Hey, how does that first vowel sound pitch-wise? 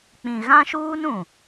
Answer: low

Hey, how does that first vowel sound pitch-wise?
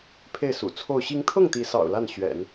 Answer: falling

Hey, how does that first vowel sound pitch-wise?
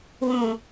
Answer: low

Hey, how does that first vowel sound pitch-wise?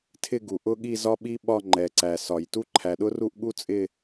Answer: falling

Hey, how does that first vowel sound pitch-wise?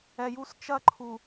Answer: low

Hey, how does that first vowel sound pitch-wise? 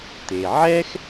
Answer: low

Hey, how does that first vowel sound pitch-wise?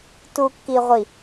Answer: low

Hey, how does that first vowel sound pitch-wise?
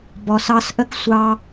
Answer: low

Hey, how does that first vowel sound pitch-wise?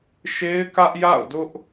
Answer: high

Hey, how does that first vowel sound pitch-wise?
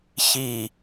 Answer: falling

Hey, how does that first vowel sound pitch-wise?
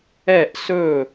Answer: falling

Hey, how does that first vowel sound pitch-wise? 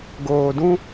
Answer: low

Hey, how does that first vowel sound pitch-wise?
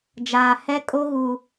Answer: low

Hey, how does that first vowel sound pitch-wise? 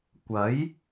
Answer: rising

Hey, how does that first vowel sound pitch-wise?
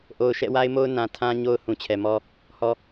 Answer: low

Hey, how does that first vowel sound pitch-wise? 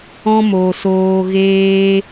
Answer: high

